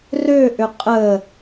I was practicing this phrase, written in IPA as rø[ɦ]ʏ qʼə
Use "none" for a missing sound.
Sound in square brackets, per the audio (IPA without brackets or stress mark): ʔ